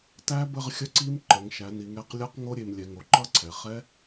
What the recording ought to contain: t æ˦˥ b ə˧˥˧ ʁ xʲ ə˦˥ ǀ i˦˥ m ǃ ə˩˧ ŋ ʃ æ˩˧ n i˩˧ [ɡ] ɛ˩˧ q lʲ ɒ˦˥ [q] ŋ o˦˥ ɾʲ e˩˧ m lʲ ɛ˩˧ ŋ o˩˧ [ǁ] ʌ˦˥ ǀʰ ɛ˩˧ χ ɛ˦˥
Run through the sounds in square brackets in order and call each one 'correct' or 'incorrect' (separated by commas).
incorrect, correct, incorrect